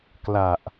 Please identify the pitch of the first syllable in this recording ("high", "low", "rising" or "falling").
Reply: low